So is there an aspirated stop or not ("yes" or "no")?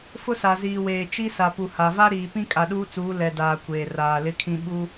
yes